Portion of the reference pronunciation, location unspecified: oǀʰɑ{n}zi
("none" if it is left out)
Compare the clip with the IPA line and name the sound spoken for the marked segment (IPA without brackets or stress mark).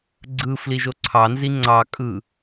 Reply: n